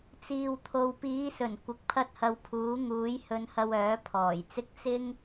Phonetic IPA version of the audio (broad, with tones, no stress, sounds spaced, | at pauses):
t͡s iː˨ w t̪ʰ o˨ w p iː˨˧ s ɵ˨˩ n kʷ ɪ˨˥ k̚ pʰ ɐ˧ t̚ h ɐ˨˧ w pʰ uː˨˥ ŋ uː˨˥ j h ɵ˧ n h ɐ˧ w œː˨˥ pʰ ɔː˨˩ j t͡s ɪ˥ k̚ t͡s ɪ˥ ŋ